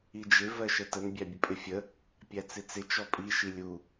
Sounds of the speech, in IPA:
i d͡ʒ ɪ v ɜ ʃ ə t ə n bʲ æ bʲ ə pʼ ɪ fʲ ə | pʲ æ t͡s ɪ t͡s ɪ t͡ʃ ɔ pʼ i ʃ i lʲ u

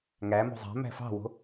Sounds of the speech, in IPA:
ŋ æ m o̤ zˤ æ̤ m æ̤ f ɑ̤ w o̤

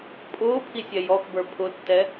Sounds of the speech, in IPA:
pʼ ʊː pʰ i sʲ ɛ j ɔ x b ə˞ pʰ ʊ tː ɛ

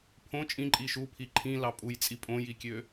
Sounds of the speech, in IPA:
pʰ õ t͡ʃʼ ĩ ǃʼ iː ʃ u pʰ i ǃʰ ĩ l ɑ pʼ u j t͡sʼ i pʼ õ j i kʲ ø

